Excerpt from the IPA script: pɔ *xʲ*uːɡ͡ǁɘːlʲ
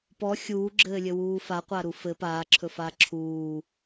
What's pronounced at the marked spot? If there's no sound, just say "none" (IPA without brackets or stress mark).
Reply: xʲ